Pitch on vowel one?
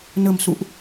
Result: low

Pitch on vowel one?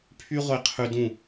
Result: high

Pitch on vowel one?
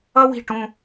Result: high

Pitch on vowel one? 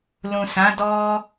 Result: low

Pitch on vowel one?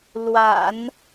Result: low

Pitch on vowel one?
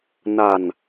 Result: low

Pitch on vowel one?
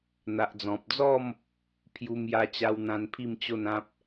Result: low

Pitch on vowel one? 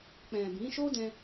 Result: low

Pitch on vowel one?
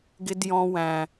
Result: high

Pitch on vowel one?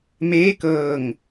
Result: rising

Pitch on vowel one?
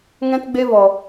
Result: high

